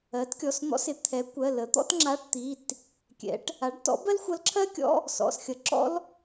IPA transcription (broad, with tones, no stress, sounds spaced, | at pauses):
ɜ˩˥ t kʲ ɔ˩˧˩ s n̪ ɔ̰˧˥ s ɪ˩˥ t̪ʰ ɛ˩˥ kʷ ɜ˩˧˩ l ə˩˥ t̪ ɔ̰˥ t ŋ͡ǁ a˧˥˧ ʈ t̪ i˩˧˩ t | kʲ ɛ̰˩˥ ʈ | a˩˥ ɖ t ɔ̰˧˥ b ɜ˥ l xʷ ʌ˧˥ l ǁʰ ɜ˥ kʲ ɔ̰˧˥˧ | s ɔ̰˩˧˩ s xʲ ʌ˩˥ ǁ ɔ̰˥ l